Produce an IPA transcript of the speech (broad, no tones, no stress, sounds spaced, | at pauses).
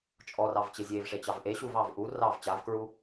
t͡ʃʼ ɔ r ɑ v t͡ɕ e zʲ e v ʂ e t͡ɕ ɑ v ʔ e ɕ u v ɑ v ʔ u r ɑ v t͡ɕ a v k ɹ u